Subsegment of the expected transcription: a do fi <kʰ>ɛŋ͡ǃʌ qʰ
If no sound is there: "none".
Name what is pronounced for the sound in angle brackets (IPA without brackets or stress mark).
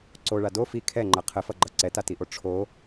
kʰ